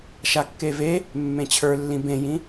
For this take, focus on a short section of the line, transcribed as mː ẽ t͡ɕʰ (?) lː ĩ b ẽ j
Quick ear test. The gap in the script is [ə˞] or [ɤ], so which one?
ə˞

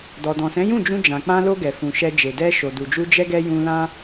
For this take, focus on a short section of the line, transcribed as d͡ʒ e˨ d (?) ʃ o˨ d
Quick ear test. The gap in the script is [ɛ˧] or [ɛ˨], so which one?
ɛ˧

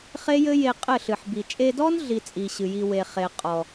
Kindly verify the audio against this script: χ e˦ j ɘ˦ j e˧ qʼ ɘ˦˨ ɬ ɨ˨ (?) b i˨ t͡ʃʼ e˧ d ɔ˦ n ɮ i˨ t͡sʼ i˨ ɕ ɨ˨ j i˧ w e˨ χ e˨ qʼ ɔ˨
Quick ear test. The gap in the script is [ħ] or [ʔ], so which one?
ħ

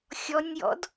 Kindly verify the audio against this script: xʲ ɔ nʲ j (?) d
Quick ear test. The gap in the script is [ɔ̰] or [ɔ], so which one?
ɔ̰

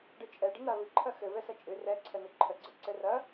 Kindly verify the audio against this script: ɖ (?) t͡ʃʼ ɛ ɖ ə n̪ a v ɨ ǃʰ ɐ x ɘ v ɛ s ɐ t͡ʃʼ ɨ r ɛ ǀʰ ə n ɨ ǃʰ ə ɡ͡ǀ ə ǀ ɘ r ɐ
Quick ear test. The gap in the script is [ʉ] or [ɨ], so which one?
ɨ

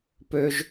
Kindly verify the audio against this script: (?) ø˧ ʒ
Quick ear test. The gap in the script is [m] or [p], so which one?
p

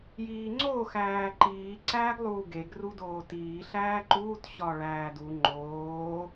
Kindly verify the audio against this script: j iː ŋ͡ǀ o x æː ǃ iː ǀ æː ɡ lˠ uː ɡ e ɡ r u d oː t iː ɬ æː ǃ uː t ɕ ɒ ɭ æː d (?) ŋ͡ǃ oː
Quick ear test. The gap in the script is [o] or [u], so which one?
u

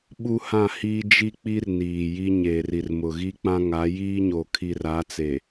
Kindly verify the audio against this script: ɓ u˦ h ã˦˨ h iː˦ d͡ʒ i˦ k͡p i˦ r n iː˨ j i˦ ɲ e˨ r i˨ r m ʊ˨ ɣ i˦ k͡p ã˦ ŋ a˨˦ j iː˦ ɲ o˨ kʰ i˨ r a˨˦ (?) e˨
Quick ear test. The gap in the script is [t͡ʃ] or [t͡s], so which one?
t͡s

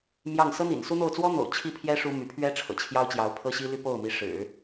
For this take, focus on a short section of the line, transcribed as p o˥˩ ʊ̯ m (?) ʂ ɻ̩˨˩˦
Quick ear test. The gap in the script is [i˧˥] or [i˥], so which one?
i˧˥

